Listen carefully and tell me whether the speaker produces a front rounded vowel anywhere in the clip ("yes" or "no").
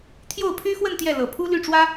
yes